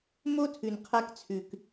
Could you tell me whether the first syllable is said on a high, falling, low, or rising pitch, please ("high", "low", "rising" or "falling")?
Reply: high